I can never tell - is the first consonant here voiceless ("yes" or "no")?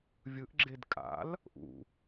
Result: no